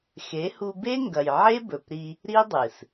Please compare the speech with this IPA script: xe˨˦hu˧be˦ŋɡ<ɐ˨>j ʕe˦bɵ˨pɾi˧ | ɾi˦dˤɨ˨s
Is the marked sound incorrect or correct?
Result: correct